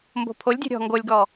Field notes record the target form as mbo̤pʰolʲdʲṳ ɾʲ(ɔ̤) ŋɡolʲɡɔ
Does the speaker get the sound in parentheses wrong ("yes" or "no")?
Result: no